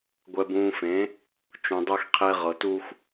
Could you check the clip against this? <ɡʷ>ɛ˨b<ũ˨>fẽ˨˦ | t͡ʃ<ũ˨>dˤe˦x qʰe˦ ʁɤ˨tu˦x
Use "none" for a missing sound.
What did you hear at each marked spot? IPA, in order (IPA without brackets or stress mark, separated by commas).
ɡʷ, ũː˨, ũ˨